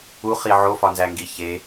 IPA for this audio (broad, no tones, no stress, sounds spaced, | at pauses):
u χ i ʕ o f ɒ n z æ ŋ ɡ i ç e